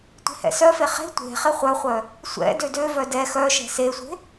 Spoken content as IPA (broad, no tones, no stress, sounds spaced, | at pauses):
tʷ e̤ h ɛ̰ s œ f e χ e̤ tʷ e̤ χ ɪ χʷ œ χʷ œ | sʷ ɛ̰ d ø d ø v œ d ɛ x œ ʃ ɛ̤ s e sʷ e̤